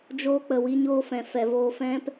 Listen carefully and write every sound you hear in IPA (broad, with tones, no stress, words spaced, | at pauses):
d͡ʒoː˧k͡pə˨wi˧ɲoː˧ fɛ̃˨fɛ˨voː˧ fɛ̃˦p